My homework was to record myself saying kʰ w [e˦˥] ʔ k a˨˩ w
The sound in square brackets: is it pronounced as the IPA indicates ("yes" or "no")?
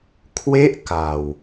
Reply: yes